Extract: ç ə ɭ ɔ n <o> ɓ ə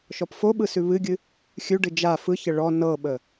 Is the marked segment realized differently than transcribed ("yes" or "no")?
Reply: yes